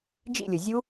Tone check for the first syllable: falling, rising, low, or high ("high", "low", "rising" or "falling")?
falling